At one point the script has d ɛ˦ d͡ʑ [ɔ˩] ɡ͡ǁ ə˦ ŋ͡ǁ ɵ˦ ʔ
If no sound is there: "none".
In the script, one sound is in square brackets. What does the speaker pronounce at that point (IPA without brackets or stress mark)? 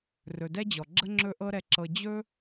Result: ɔ˩